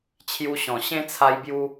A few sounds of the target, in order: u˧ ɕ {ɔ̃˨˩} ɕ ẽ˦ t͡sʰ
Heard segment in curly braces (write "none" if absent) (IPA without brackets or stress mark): ɔ̃˨˩